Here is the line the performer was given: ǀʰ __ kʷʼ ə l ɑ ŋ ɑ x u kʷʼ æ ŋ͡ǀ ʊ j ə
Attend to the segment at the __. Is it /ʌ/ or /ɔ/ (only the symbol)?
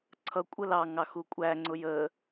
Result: ʌ